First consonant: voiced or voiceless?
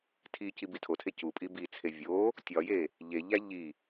voiceless